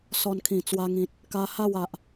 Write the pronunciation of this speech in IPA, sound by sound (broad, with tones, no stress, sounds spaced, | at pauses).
s ɔ˧ n kʰ ĩ˨˩ t͡s w a˧ ŋ ĩ˨ t̚ | k a˧ h a˥˧ w a˨ ʔ